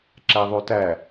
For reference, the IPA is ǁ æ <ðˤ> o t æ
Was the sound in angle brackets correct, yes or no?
yes